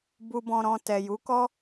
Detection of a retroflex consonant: absent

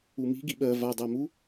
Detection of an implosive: present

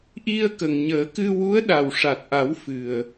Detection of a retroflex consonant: present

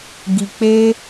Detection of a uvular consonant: absent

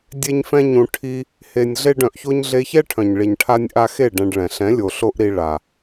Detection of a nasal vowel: present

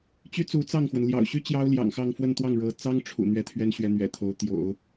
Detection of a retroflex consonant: present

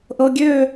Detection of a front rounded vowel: present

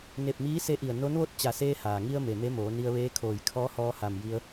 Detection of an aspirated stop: present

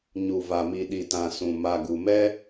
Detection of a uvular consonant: absent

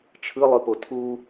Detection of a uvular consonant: absent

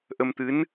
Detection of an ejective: absent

